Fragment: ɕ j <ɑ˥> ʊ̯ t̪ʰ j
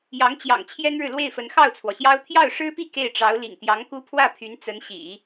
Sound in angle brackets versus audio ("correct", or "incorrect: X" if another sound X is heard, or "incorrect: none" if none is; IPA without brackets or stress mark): correct